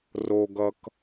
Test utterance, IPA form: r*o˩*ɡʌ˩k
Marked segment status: correct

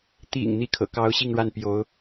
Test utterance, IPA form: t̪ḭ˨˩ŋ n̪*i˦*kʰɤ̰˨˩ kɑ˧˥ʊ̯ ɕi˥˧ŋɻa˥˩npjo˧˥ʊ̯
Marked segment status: incorrect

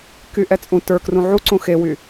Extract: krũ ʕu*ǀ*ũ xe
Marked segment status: correct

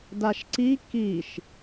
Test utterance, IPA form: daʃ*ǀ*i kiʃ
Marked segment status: correct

